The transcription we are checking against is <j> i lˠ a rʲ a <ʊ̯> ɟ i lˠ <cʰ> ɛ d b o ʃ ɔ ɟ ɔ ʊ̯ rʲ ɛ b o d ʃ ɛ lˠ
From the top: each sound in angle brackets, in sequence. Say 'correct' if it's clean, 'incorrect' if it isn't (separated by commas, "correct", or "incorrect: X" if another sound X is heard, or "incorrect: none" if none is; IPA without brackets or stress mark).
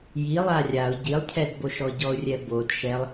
correct, correct, correct